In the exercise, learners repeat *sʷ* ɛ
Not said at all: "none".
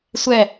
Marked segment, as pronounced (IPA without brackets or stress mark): sʷ